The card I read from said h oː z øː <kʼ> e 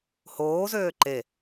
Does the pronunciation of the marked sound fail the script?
yes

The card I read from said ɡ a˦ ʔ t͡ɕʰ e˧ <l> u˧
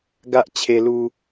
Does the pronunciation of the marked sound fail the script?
no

